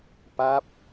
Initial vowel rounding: unrounded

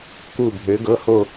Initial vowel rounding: rounded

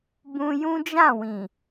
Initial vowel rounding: rounded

